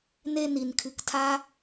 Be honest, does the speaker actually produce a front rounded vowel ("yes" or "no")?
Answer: no